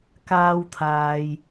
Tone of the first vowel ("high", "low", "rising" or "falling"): high